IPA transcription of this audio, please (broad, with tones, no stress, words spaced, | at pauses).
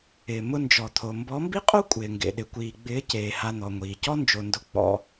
ɪː˨mʊ˧nd͡ʒɔ˨t̪ʰo˨ mbɔ˨˦mbi˦qʼo˦ kʷʼɪː˨ŋɡḛ˨ ɗɪ˨kʷiː˨ɡ͡bɪː˨˦ ceː˨ ha˧n̪ɔ˨ŋʷiː˨ cɔ˦nd͡ʒo˨ndʊ˧ k͡pɔ̰˧